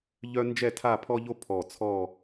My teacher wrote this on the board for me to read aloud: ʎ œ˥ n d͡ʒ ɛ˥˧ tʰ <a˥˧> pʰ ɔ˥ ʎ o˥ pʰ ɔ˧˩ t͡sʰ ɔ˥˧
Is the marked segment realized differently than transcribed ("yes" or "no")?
no